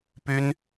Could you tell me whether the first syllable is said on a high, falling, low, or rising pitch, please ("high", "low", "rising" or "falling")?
high